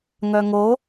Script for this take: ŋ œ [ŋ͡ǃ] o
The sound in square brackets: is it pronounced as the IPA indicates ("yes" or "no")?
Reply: no